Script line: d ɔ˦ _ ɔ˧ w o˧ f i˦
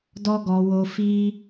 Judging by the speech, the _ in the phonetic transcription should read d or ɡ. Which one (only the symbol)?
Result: ɡ